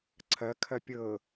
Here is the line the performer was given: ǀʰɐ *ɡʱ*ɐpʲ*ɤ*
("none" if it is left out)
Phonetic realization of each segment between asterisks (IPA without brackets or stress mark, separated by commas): kʰ, ɤ